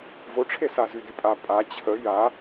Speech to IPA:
v o ʈ͡ʂʰ e s a z y d y pʼ a pʼ a t͡ɕʰ ə j a

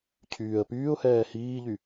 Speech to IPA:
cʰ yː ə̯ p yː ʊ̯ h ɛː h iː ʎ y

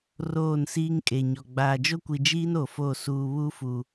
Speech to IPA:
r oː˦˨ n s iː˦ ŋ kʼ e˨ ɲ ɔ˨ ɡ͡b aː˨ d͡ʒ o˦ kʷ i˨ d͡ʒ iː˦ n o˨ f o˦˨ s uː˨ β u˦ f u˨

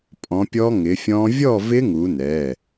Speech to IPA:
pʼ ɔ̃˨˦ pʲ ɔ˦˥ ŋ ɪ˨˦ fʲ ɔ̃˦˥ vʲ ɔ˥˧ v ɪ˦˥ ŋ u˨˦ n ɛ˩˧˩

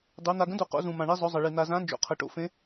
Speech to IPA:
dˤ u˦˥ n̪ a˧ ɡ ə̃˦˥ d o˧ q o̰˦˥ z ũ˧ m ã˧ ɳ i˦˥ zˤ ɵ˦˥ zˤ ə˧ ɭ i˧ n̪ a˧ z ã˦˥ n d͡ʒ o̰˧ qʰ ə˧ ʈ o̰˧ f ẽ˦˥

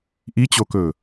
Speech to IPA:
ʔ i t͡ɕ o k ɵː

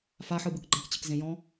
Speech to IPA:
f a ħ ɯ b ɯ k ɡ͡ǃ ã k t͡ɕ ɨ k z ẽ j ɔ̃

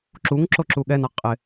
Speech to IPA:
ǁ u ŋ ǁ o ǁ u ɠ ɛ n a qʼ ɪ

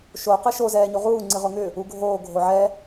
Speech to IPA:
ʃ o q ɨ ʃ o z ɛː ɲ u ʁ uː ŋ͡ǀ ɨ ʁ o ŋ ʏ | u ɡʱ oː ɡʱ o ʕ ɛ

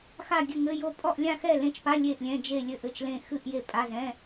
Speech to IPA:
x a˥˨ ɡʲ ɘ˥˨ ŋ ɘ˧˥˧ j o˥˨ pʼ ɔ˥˨ ʔ lʲ ã˥˨ x ɛ˥˨ l ẽ˧˥˧ t͡ʃ p a˧˥˧ lʲ e˥˨ ʔ lʲ ɛ̃˧˥˧ d͡ʒ e˥˨ lʲ ɘ˥˨ ʔ ɘ˥˨ t͡ʃ l ẽ˥˨ x ɨ˥˨ ʔ j e˥˨ pʼ a˧˥˧ z ɛ̃˧˥˧

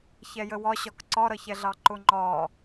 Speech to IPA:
ç ɛ j ə w ɒ ɕ ɒ k ǀ ɒ ɾ ʌ ç ɛ ɮ ɑ ǃ ʊ ŋ͡ǃ ɒ

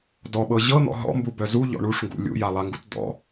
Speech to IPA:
d ɔ ɓ ɤ ʑ ɤ n̪ ɔ̰ ɦ ɔ̰ m b u b œ z u ʎ ɔ̰ ɳ u ʂ ŋ ɡ ṵ lʲ ṵ j a lˠ a ŋ ɡ u t d ɔ̰

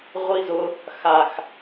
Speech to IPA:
ʁʷ i z ʊ | x a x

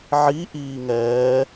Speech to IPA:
ʕ i ʔ iː ŋ ɛː

